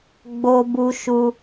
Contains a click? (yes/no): no